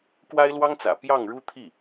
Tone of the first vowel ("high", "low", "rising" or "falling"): high